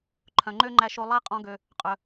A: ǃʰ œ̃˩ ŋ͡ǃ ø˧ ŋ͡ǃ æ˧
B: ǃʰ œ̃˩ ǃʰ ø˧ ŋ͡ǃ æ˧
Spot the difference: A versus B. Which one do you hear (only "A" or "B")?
A